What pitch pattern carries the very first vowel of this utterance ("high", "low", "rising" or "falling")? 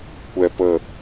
low